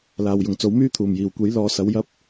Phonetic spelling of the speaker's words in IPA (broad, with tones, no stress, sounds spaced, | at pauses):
l aː˨ w j ʊ˨˩ ŋ t͡s o˨˥ w m yː˥ t̪ʰ uː˨˩ m j iː˨˩ w kʷ e˨˥ j l ɔː˨˧ s ɐ˨˥ w j ɐ˥ p̚